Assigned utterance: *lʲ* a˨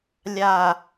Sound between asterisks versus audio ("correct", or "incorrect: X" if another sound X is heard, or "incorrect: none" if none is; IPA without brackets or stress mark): correct